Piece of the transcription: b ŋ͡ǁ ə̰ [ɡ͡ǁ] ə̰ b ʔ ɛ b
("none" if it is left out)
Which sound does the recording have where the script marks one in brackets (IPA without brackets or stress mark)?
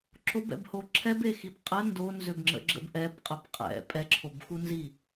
ɡ͡ǁ